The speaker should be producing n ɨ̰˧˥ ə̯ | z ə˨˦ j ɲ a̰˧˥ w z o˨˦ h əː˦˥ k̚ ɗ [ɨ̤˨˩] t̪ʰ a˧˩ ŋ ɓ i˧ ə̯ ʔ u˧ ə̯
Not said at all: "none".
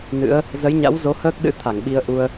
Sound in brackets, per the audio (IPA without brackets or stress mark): ɨ̰˧˥